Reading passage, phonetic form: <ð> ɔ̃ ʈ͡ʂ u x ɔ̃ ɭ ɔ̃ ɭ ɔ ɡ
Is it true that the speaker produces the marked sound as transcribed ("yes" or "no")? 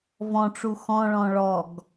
no